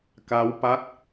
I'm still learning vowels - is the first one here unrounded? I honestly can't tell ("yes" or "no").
yes